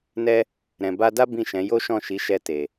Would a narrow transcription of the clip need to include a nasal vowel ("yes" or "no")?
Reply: yes